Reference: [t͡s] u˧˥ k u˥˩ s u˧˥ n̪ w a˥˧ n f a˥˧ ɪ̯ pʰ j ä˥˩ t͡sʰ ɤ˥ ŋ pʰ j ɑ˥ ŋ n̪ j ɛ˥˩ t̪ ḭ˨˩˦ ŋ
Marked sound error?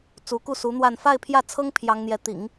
no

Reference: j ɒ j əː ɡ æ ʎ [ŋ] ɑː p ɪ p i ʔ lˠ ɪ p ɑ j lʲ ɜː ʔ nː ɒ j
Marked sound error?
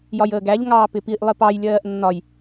no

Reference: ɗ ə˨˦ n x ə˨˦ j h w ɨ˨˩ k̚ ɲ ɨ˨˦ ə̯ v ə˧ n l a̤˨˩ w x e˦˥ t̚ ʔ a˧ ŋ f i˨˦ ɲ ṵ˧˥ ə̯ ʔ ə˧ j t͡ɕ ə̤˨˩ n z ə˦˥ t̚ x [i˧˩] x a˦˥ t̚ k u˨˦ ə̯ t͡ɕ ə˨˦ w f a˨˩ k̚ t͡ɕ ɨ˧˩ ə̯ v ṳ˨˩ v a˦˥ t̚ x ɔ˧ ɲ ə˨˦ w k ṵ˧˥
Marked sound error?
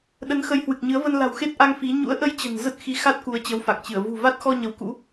yes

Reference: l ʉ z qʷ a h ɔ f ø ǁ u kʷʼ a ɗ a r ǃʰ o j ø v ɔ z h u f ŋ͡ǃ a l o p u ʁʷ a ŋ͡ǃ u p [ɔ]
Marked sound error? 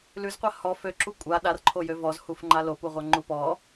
no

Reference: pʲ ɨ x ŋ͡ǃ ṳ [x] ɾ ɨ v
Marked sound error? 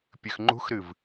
no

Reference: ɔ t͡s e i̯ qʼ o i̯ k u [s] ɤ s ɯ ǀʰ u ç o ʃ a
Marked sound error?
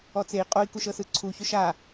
yes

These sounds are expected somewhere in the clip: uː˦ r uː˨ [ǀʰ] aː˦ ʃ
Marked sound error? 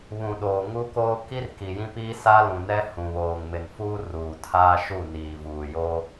yes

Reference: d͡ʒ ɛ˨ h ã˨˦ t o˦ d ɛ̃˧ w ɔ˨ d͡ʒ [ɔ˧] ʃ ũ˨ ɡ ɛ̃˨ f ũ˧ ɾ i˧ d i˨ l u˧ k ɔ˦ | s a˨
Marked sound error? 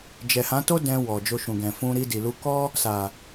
yes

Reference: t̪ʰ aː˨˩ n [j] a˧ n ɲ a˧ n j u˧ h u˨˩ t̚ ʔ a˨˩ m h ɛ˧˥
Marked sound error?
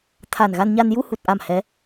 yes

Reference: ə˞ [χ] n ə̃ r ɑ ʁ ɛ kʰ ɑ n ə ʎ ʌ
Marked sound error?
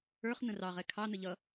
no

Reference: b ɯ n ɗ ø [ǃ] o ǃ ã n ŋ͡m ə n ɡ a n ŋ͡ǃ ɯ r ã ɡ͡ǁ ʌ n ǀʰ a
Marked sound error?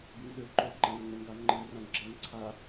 no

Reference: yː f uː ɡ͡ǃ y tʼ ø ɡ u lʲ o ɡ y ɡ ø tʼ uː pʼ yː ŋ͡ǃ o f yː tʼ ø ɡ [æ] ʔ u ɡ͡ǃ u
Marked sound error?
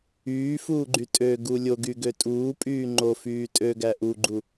no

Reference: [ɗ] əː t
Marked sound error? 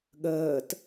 yes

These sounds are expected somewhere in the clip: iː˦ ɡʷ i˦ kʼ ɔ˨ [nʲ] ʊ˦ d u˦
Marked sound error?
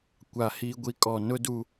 yes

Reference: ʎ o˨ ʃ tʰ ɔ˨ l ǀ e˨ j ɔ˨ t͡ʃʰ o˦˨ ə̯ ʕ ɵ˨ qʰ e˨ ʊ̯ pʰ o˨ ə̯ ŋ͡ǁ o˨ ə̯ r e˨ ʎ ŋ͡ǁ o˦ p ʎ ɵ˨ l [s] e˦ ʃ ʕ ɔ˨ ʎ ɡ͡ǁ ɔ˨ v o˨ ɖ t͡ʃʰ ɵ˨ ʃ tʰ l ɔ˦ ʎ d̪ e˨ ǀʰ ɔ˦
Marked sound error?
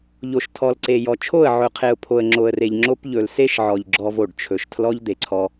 no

